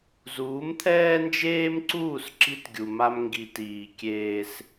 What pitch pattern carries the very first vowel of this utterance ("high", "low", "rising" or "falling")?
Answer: rising